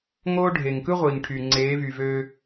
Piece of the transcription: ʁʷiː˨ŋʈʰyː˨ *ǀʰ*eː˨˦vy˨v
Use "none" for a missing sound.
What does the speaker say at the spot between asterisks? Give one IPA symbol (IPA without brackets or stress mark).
ŋ͡ǀ